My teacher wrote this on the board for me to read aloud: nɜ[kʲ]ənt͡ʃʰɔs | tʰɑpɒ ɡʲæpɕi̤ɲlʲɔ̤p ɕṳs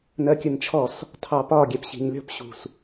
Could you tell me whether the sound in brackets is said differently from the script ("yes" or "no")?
no